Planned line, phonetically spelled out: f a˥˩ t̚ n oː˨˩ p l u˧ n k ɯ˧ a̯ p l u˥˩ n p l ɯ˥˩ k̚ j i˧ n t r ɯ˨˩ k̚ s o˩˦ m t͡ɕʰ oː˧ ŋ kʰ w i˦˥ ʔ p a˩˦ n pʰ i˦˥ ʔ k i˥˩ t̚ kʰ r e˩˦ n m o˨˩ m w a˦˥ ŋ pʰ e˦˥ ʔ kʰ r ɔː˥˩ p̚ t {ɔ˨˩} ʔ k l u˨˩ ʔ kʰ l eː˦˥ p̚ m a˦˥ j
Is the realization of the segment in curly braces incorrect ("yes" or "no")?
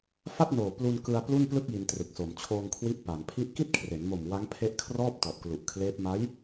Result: no